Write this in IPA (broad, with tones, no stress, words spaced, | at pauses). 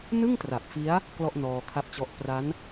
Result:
nɯ˥˩ŋtra˨˩p̚fi˦˥a̯ | klɔ˥˩ʔnɔː˧kʰa˦˥p̚t͡ɕɔ˦˥ʔ pra˦˥n